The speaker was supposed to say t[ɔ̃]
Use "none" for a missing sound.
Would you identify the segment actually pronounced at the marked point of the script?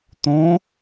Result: õ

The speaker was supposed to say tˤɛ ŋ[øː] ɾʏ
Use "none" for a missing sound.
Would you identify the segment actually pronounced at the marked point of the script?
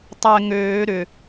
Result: øː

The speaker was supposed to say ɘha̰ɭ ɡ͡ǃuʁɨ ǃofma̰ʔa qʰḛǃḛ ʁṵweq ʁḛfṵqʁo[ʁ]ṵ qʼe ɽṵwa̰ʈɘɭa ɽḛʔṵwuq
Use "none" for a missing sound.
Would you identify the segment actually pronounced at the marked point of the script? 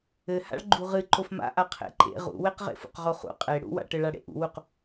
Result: χ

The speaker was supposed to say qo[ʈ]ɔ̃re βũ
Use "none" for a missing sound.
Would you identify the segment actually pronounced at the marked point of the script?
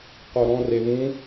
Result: ɾ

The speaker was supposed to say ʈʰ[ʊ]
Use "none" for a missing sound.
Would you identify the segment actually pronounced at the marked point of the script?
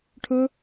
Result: ʊ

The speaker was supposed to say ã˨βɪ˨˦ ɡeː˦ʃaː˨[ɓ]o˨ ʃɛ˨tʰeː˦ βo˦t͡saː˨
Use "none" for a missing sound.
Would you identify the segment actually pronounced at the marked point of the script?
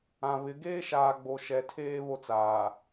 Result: ɡ͡b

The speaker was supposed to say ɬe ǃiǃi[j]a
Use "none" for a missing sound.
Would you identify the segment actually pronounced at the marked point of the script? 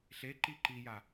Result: j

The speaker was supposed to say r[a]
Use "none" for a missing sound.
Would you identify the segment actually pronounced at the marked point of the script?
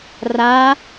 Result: a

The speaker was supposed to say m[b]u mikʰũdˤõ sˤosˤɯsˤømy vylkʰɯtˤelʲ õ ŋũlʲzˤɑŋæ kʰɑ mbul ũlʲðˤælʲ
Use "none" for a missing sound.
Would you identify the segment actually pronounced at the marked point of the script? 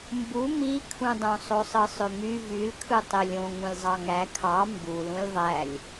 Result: b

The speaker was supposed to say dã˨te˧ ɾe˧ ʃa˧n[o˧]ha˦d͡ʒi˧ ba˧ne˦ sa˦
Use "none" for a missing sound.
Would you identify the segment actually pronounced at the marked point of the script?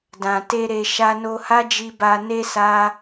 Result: o˧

